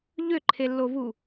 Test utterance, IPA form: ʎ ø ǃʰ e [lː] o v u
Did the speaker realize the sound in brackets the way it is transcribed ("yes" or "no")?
yes